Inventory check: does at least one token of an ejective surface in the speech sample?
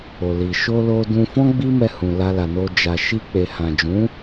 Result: no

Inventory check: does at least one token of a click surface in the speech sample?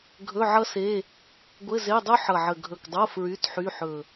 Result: no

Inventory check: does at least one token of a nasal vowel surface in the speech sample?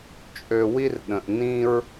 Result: yes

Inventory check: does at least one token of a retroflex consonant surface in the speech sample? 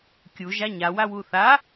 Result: no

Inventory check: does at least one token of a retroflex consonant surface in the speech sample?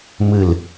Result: no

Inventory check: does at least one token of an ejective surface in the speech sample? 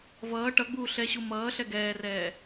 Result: no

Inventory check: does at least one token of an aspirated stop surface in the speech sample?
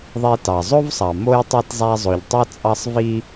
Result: no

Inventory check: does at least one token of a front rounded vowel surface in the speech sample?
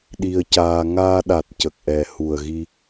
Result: no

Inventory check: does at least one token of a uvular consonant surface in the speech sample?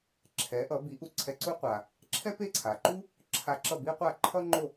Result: yes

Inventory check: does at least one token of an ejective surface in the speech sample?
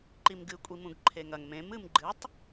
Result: yes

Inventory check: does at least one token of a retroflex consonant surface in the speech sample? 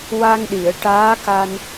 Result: yes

